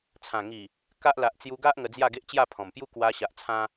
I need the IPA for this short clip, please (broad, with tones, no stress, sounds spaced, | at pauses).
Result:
t͡sʰ ã˨˩ ŋ i˨˩ | k a˦ ʔ l a˨ ʔ t͡s j u˧ ɡ a˦ ʔ ŋ ə˧ d͡z j a˥˧ ɡ e˦ ʔ t͡ɕ j a˥˧ pʰ ɔ̃˨˩ m p j u˦ k w a˧ ɕ a˨ ʔ t͡sʰ ã˧